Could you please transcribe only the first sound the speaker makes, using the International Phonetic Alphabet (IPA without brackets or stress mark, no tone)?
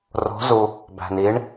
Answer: r